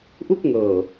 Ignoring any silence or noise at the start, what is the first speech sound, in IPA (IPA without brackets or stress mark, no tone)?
ʔ